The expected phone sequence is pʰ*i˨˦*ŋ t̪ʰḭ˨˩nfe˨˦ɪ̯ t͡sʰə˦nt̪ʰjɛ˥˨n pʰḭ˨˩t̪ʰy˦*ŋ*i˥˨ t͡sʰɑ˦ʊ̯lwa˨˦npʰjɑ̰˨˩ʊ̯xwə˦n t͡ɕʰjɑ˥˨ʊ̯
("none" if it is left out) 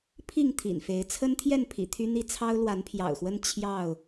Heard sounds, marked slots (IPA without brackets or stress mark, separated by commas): i˥˨, n̪